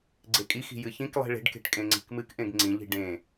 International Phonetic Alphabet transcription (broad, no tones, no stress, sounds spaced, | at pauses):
ɡ͡ǀ e kʼ i x i̤ j ɨ ç ĩ k lˠ i̤ ɭ e̤ ɖ k e̤ ʈ kʼ ẽ ŋ͡ǀ i̤ k m ɨ k ʔ ẽ ɡ ŋ͡ǀ ĩ ʎ i̤ ɖ ẽ